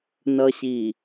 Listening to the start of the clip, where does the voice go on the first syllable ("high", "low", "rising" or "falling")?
low